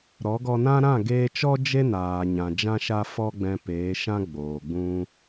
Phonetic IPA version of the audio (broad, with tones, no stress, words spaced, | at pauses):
ɾɔ˨˦ɡɔ˧nã˦ ɾã˦˨ɡeː˧t͡ʃɔ˦ d͡ʒe˦naː˨ɲã˨ d͡ʒã˦ʃa˦ fɔ˦ɡ͡bɛ̃˧peː˨˦ ʃã˦ ɡ͡boː˨ɡ͡bũ˧